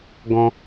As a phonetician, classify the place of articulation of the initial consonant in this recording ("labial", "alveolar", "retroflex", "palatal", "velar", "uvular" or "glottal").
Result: velar